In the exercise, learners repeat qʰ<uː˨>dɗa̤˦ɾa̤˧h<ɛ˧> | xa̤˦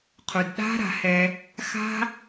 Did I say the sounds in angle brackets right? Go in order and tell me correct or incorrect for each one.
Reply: incorrect: u˨, correct

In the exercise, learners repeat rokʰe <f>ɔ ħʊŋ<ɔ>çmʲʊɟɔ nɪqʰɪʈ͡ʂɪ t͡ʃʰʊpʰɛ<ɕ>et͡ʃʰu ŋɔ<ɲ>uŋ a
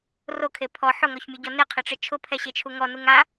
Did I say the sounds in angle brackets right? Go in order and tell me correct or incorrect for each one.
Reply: incorrect: pʰ, correct, correct, incorrect: n

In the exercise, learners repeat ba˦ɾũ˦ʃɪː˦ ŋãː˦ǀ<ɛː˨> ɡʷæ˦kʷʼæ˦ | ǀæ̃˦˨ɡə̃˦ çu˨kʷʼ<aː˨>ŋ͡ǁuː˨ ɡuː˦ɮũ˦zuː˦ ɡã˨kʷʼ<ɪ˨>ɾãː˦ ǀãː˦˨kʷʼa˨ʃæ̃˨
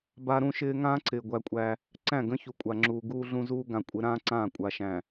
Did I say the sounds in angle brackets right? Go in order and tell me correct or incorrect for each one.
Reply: incorrect: ɪː˨, incorrect: a˨, incorrect: ɪ˨˦

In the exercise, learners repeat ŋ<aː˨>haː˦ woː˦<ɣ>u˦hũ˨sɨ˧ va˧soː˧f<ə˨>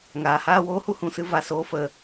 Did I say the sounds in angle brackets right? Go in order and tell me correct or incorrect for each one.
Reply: correct, incorrect: h, correct

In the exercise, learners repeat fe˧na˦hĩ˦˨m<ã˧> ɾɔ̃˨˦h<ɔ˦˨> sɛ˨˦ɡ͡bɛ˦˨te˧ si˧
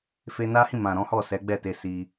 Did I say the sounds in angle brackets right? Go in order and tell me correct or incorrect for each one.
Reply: incorrect: ã˨, correct

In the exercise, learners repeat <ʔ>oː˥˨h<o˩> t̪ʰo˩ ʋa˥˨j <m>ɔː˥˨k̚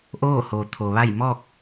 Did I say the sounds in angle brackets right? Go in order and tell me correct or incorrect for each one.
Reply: correct, correct, correct

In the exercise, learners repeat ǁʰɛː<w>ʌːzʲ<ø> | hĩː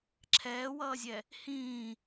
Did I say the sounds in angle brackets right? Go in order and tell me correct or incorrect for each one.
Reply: correct, incorrect: ɛ

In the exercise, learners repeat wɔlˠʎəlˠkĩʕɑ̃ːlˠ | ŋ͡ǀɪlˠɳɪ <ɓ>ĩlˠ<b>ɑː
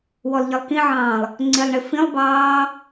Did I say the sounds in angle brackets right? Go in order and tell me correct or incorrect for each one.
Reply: incorrect: f, correct

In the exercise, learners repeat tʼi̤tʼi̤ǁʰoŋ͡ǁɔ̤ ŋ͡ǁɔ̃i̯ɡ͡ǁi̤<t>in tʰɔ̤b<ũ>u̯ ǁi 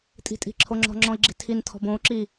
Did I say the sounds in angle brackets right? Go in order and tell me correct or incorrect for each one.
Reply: incorrect: tʰ, incorrect: õ

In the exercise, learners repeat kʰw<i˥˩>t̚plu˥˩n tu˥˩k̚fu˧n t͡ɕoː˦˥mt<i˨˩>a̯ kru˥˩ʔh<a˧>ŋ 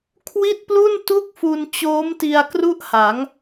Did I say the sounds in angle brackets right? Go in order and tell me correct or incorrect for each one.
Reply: correct, incorrect: i˧, incorrect: a˩˦

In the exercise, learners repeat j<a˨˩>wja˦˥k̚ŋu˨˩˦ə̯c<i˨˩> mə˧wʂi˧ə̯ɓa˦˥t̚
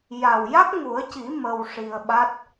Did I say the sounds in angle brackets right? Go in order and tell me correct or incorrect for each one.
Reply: correct, incorrect: i˨˩˦

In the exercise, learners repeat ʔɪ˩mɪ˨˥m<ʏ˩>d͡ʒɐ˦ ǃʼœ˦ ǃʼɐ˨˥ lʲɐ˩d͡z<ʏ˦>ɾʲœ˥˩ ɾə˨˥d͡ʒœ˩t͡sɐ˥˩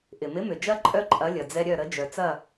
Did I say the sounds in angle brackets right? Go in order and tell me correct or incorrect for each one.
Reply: correct, incorrect: ɛ˦

